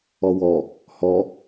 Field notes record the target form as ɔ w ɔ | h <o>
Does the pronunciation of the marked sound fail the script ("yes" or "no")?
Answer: yes